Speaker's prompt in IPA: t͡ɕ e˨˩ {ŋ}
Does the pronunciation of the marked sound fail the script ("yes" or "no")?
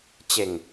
no